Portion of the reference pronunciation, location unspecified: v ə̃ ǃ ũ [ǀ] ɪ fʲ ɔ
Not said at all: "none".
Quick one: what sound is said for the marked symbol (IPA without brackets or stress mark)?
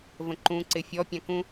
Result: ǀ